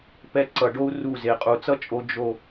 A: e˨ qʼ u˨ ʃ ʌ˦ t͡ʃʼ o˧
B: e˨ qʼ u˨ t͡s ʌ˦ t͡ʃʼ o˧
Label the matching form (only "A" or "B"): B